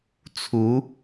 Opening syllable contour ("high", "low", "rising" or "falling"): rising